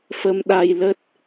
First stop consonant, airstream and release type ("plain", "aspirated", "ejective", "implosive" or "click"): implosive